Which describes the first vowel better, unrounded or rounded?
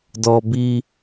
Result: rounded